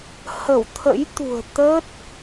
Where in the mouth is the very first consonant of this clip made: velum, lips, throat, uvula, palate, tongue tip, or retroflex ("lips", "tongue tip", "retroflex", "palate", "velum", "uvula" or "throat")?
throat